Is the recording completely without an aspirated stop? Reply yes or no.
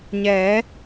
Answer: yes